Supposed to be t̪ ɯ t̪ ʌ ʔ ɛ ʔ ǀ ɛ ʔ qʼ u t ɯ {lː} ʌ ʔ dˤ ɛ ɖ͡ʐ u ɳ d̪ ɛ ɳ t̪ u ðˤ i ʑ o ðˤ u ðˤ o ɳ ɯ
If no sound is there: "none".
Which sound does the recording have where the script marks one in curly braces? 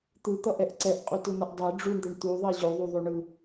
n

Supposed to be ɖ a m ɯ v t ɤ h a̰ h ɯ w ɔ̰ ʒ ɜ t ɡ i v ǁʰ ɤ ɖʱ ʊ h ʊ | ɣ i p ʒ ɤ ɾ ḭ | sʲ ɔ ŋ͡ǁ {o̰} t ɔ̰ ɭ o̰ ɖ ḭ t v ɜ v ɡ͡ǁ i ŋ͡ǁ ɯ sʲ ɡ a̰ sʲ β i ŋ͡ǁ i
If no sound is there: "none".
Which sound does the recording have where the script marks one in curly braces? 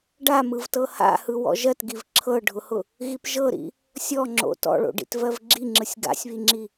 o̰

